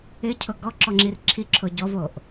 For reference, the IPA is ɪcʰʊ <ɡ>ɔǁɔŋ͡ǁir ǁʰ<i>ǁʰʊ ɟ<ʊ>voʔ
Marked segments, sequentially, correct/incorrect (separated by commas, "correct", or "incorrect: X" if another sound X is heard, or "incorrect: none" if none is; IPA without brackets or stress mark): correct, correct, incorrect: ɔ